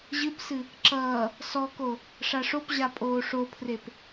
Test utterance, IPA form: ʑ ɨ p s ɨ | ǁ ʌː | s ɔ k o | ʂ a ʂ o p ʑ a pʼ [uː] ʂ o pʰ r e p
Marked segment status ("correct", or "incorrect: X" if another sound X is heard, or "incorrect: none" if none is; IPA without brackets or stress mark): incorrect: oː